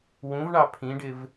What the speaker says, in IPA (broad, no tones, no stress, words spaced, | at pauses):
wũvɳɑ pʰĩɖɪv